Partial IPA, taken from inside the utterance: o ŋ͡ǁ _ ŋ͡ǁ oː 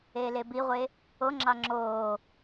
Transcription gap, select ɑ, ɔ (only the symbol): ɑ